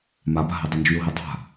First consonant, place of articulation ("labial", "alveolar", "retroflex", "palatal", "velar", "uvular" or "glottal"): labial